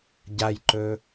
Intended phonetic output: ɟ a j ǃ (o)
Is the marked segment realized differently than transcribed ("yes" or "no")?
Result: yes